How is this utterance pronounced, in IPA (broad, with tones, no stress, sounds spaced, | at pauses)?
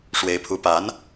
ʂ w e˧˥ ɪ̯ pʰ u˧˥ p a˧˥ n